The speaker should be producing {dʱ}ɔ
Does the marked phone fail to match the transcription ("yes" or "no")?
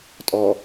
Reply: yes